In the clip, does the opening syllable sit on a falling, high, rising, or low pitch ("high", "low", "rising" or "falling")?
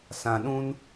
low